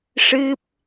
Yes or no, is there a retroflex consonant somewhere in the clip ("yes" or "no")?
yes